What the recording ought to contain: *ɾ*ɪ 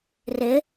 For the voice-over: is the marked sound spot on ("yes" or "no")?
no